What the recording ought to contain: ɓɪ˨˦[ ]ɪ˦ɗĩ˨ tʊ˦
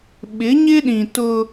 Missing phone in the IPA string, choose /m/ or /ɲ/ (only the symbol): ɲ